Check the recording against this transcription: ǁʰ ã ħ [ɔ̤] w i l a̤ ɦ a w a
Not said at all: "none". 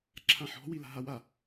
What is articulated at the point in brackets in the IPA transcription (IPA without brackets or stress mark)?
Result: ɔ̤